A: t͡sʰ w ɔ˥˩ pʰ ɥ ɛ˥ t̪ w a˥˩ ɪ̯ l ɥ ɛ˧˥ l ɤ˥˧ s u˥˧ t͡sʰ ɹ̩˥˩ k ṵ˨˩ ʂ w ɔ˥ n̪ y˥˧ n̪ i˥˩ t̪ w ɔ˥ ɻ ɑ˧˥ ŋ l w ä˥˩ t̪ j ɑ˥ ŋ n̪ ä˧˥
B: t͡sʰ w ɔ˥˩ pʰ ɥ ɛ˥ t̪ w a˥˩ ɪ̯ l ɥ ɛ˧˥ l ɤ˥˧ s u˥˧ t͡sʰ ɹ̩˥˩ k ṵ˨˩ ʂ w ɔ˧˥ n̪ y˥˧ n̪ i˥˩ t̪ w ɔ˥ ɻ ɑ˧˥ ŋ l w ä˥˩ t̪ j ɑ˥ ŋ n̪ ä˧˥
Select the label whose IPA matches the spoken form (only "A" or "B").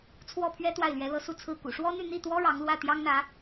A